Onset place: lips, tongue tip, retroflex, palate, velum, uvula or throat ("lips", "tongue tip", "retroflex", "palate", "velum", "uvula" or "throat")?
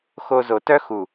velum